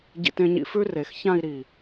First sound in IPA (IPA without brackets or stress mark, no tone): ɟ